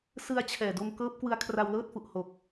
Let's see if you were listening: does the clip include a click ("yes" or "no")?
no